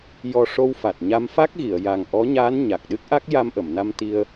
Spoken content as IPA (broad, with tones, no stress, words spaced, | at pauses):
jɔ˨˩ ʂo˧wfa˨˩t̚ɲa˧m fa˦˥k̚ɣi˨˩˨ə̯ja˨˩ŋ ʔɔ˧˥ɲaː˧˥n ɲa˨˩k̚ɗɨ˦˥k̚ʔa˦˥k̚ ja˧mʔə˨˩˨mna˧m t̪i˧ə̯